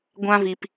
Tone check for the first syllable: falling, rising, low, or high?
high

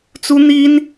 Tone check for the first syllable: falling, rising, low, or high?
high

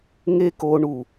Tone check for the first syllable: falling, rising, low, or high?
high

